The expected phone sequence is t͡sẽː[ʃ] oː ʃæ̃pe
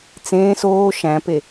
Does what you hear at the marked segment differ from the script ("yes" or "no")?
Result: yes